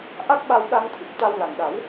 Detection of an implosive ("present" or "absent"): present